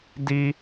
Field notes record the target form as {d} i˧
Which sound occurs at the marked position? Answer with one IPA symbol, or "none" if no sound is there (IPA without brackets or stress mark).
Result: d